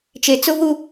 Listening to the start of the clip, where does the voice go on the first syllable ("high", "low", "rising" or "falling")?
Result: low